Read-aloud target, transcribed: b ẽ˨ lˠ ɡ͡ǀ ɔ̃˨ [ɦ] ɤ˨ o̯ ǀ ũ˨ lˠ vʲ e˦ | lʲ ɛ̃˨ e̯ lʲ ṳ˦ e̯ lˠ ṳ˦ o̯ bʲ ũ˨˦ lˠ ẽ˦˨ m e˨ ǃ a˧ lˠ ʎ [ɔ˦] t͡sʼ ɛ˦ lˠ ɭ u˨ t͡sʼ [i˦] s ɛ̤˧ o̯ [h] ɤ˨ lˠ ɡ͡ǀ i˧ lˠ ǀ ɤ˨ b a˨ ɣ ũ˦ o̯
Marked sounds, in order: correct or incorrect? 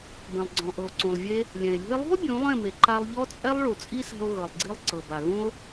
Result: incorrect, correct, correct, incorrect

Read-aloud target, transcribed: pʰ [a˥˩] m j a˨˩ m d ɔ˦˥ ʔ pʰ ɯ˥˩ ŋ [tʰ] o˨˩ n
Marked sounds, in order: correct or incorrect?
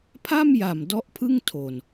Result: correct, correct

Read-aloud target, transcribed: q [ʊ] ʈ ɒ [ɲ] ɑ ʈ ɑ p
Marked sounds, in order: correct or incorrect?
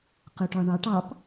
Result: correct, incorrect

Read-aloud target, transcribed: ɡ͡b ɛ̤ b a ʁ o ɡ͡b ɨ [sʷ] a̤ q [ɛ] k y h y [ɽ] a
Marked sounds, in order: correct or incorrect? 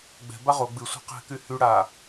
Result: correct, incorrect, correct

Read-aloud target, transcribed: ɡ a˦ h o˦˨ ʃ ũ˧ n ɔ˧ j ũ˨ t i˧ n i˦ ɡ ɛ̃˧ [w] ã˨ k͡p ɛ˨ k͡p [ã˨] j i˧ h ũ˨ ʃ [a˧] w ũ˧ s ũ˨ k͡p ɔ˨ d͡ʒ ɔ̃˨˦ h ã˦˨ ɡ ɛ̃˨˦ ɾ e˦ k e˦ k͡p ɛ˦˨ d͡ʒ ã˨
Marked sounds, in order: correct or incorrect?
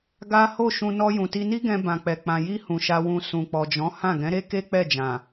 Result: incorrect, correct, correct

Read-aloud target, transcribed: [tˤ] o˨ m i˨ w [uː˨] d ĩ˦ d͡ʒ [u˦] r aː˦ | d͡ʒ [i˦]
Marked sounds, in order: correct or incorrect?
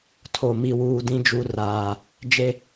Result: incorrect, correct, correct, incorrect

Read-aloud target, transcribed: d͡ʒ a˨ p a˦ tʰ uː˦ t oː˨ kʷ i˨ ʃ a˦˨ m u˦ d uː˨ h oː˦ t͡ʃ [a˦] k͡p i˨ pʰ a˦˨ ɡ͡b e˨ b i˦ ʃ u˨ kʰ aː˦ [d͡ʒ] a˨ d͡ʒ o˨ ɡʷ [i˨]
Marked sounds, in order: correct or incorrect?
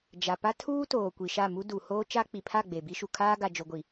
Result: correct, incorrect, correct

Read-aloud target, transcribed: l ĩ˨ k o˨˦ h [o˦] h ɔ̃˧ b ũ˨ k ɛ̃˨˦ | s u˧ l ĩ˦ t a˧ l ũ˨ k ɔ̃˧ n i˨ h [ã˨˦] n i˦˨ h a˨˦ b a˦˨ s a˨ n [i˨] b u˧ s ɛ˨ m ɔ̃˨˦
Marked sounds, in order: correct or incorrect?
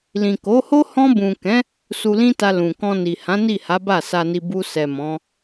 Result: correct, correct, correct

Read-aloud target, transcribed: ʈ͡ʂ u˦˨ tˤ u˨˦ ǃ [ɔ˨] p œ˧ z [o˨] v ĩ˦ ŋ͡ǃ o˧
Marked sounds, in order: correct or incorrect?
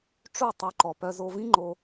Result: correct, incorrect

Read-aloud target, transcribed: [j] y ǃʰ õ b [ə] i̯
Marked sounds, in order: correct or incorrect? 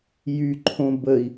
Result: correct, correct

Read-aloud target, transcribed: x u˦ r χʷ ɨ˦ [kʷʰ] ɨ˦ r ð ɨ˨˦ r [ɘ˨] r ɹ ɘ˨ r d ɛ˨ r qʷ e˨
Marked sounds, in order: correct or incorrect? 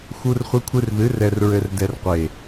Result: correct, incorrect

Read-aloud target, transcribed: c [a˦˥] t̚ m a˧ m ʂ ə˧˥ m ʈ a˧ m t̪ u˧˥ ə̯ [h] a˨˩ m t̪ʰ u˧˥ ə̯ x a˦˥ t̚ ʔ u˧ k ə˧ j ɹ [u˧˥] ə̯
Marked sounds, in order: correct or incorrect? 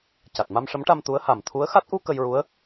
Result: incorrect, correct, correct

